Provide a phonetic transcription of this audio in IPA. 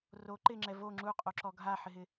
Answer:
ro ǃɪŋ͡ǁɛ vo ŋ͡ǁuqʼoǁɔ ɡʱaħɪɦɪ

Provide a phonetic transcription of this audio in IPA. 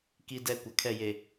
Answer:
ki˦dɛ˦ kʷa˨kʰɛ˦˨je˨

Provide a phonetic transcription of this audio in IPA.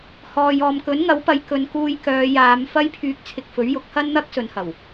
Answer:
hɔː˨jɔː˨mkɵ˨˥n ŋɐ˨˥wpɐ˨˧j kɵ˨˧nkuː˧j kœː˨˧jaː˨˧m fɐ˥jpʰyː˧k̚ t͡sʰɪ˧k̚fɵ˨˥ɥjʊ˨˥k̚ hɐ˥nn̪ɐ˥k̚ sɵ˨˧nhɐ˨˩w

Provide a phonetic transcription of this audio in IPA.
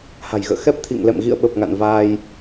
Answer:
ha̤˨˩jɣə̰ː˧˨ xɛ˦˥p̚t̪ʰḭ˧˨ŋlɛ̰˧˨m ɣḭ˧˨ə̯ɓə˨˩p̚ ŋa̰˧˨n vaː˧j

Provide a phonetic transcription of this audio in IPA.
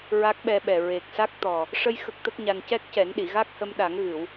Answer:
ɹa˦˥k̚ɓɛ˧ɓɛ˨˩ ɹe˨˩k̚sa˦˥k̚ t̪ɔ˨˩ | ʂə˧j xə˦˥k̚t̪ə˦˥k̚ɲa˧n cɛ˦˥k̚cɛ˨˩˦nɗi˨˩˨ɣa˦˥k̚ hə˧mɗa˨˩˦ŋɣɨ˨˩˨w

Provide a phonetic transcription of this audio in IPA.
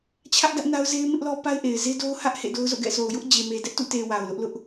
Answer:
t͡ɕʰä˦ʔdä˦ʔ na˦ʊ̯ze˦ɪ̯mɪ˦ʔlɔ˦ pa˦ɪ̯ʔe˨ɪ̯ze˦ do˦ʊ̯hä˦ʔ hḛ˦˨do˦ʊ̯zo̰˦˨ɡɛ̰˦˨ sʰo˨ʊ̯jʊ˦ʔd͡ʑe˨ me˨dɛ˦ʔtṵ˦˨ te˨ wa˨ʊ̯lʊ˦ʔlʊ˦ʔ

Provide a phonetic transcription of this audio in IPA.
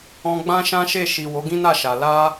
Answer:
ɔ̃˧ɡ͡bã˦ʃã˦ʃe˦˨ ʃi˨ wo˨˦ɡĩ˦na˦˨ʃa˨ la˧

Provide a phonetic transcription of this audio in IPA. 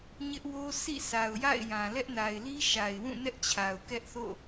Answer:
ɲɪ˦ʔwo˦ sḭ˦˨sʰa˨ʊ̯ ja̰˦˨ɪ̯jã˨lɛ˦ʔ na˨ɪ̯li˦ ʃa˨ɪ̯ wũ˦˨nɛ˦ʔ t͡ɕʰa˨ʊ̯kɛ˦ʔθo̰˦˨

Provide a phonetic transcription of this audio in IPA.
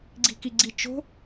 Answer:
ɡ͡ǀi̤kiɡ͡ǀit͡ʃo̤

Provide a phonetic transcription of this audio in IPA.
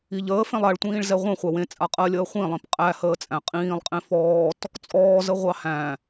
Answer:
iʎəːfẽlˠ aɭtʷĩːɭzɛ ʁʷẽ χʷæwẽ t͡sʼaqʼɜlʲəː χʷĩlˠĩp qʼæhəː t͡sʼæ̃qʼĩːlˠ qʼẽfɔːt | t͡sʼɔːzə ʁʷɑhæ̃

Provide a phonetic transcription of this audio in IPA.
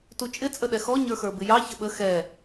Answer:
tut͡ʃʼɪ t͡sʼəɗɛxɔ ɲə˞xə˞bɪjɑ çəɓə xɛ

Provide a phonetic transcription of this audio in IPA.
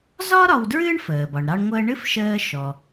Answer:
zɒ˥ ɾɒ˧wdɹɨː˥ɳ fəː˩bɒ˩ɳ ɾɑ˧ɳŋʷəː˧ɳɨ˥f ʃəː˧ ʃɔ˩

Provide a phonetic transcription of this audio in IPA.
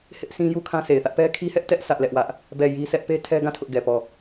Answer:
hɪ˦ʔsʰĩ˦ ju˦kʰã˦sʰe˨ɪ̯θä˦ʔ pɛ˦kʰi˦hɛ˦ʔtɛ˦ʔ sʰä˦ʔlɛ˦ʔwä˦ʔ | bɛ˦˨ji˦sʰɛ˦ʔ pe˦tʰɛ˦ɡã˦˨ tʰʊ˦ʔɡɛ˨pɔ˦˨

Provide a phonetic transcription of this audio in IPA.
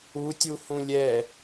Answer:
utʲuhũ lʲɛ

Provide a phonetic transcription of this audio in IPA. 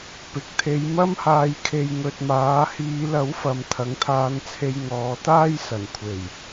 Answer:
pɪ˨k̚t̪ʰe˨˧jmɐ˥mhaː˧j kʰe˧jŋɵ˧t̚maː˨˥ hiː˨˧lɐ˨˥wfɐ˨m t̪ʰɐ˨˥ŋt̪ʰaː˧nt͡sʰe˧j ŋɔː˨˧t̪aː˥jsɐ˨˩nkʷʰe˨˩j

